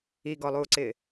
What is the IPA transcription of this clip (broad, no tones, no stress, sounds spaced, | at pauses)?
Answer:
i ɡ ɔ lˠ uː ǀ ɪː